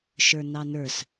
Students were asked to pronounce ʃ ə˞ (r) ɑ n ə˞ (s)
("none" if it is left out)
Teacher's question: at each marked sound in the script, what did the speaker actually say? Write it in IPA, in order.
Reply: n, s

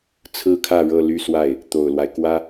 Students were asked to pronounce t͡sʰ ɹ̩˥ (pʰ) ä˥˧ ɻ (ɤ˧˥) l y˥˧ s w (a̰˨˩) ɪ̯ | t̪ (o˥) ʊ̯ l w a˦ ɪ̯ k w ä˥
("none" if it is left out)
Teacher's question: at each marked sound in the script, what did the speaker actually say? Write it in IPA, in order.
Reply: kʰ, ɤ˥˧, a˥˩, o˨˩

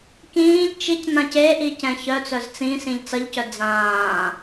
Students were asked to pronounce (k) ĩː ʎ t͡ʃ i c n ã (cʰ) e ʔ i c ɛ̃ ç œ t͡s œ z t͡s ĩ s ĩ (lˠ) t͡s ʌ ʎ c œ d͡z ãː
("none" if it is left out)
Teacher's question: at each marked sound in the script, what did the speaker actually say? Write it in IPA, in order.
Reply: k, c, ʎ

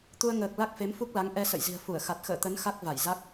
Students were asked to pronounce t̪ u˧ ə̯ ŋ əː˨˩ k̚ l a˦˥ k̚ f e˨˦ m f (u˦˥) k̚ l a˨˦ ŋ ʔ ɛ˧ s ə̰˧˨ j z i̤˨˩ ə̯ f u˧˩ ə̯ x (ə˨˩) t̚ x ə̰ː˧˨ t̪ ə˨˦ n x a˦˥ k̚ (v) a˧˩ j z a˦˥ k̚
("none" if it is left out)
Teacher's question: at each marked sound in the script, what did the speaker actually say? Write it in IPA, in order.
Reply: u˦˥, a˨˩, v

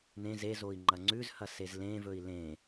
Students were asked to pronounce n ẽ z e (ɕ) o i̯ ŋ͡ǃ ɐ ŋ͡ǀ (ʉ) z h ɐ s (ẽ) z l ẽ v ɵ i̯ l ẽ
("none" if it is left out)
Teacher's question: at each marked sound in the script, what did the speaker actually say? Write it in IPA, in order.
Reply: z, ʉ, e

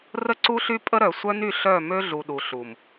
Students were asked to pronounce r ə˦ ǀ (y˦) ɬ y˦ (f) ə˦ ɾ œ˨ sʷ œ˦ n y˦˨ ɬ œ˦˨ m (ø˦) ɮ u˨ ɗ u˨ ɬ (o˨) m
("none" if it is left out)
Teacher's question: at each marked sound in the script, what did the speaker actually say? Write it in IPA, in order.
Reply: u˦, pʼ, ø˦, u˨

